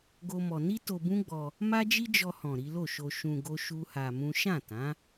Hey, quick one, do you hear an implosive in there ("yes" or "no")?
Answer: no